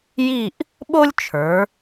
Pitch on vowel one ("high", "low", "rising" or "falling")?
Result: falling